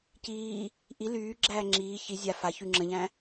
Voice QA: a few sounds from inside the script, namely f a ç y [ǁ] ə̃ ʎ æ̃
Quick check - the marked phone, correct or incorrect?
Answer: incorrect